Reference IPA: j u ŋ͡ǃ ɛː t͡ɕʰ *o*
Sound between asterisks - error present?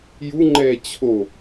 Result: no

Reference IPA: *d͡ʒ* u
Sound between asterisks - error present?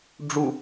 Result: yes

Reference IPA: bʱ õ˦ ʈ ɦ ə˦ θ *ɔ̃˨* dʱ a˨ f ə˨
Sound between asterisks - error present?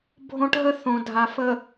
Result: yes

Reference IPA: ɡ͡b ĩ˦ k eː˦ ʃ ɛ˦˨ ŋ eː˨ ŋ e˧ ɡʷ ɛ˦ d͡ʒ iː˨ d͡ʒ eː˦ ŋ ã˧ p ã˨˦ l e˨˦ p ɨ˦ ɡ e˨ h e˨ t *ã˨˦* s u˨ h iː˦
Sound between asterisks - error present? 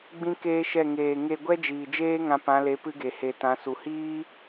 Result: no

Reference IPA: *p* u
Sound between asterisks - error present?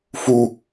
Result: yes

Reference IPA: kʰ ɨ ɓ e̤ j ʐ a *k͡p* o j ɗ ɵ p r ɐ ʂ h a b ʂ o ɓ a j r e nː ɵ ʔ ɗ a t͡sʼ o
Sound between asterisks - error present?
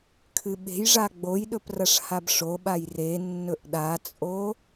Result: yes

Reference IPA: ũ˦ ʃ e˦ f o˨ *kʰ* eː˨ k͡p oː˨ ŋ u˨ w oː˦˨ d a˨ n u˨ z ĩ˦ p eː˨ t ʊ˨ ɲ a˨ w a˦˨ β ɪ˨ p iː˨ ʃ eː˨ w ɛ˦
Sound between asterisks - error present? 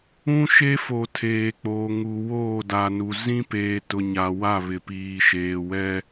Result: yes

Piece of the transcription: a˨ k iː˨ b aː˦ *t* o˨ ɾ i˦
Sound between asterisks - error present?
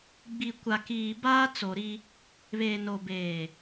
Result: yes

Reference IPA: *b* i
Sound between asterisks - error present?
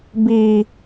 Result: no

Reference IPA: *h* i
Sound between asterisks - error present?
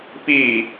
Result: yes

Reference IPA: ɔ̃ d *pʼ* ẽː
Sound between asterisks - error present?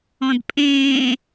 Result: no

